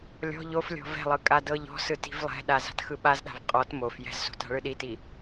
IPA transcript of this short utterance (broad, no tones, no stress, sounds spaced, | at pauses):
lʲ ɔ̤ ʎ o f lʲ ɔ̤ v ɛ̤ lˠ ɯ kʼ a d ɤ ʎ ɔ̤ s ɯ t i̤ v lˠ ɛ̤ ɗ a z a̤ t x ɯ ɓ a z ɗ a̤ v qʼ ɔ t m o f j ɛ̤ z s o̤ t a̤ ɭ ɯ ɗ i t i